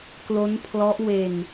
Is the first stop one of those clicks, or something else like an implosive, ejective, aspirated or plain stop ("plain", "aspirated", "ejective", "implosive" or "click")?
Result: plain